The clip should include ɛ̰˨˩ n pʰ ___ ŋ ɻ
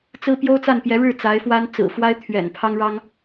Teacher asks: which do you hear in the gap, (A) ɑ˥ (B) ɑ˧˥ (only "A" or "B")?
A